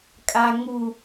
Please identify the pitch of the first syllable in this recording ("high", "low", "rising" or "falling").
low